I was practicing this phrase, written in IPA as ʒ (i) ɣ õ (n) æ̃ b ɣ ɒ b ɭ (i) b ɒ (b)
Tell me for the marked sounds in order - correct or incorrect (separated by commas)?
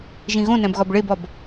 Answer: incorrect, correct, incorrect, correct